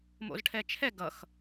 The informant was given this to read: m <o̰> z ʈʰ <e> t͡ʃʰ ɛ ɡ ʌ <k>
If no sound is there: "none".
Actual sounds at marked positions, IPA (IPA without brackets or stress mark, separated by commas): o̰, ɛ, x